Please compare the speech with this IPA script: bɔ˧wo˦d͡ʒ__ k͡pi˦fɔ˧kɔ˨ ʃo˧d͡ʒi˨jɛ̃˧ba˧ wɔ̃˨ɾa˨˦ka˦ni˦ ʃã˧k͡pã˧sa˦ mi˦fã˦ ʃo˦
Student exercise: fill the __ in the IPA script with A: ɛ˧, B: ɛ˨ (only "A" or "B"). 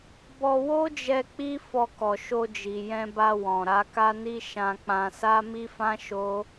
A